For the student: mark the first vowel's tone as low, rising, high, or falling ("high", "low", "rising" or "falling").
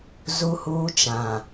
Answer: high